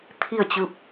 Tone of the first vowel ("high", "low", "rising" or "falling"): falling